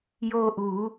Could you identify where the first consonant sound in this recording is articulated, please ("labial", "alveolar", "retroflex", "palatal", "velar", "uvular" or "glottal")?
palatal